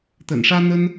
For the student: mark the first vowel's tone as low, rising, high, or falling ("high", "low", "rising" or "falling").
low